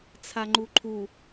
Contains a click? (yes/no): yes